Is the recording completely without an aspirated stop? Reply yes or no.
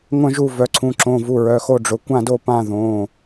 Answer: no